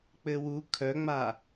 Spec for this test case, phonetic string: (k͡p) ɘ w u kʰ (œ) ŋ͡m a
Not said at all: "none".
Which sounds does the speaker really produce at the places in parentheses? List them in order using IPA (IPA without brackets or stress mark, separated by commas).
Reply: k͡p, œ